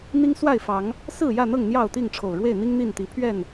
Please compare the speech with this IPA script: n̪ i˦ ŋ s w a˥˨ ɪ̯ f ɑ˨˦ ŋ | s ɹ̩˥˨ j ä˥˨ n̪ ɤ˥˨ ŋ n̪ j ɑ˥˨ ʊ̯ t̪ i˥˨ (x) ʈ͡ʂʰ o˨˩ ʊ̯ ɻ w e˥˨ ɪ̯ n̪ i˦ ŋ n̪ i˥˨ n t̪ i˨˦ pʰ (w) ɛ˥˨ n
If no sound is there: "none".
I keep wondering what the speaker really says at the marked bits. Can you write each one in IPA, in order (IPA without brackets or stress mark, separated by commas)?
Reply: ŋ, ɥ